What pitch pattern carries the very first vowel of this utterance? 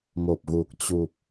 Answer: low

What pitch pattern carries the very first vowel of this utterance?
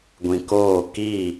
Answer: low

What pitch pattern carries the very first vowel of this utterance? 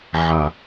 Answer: low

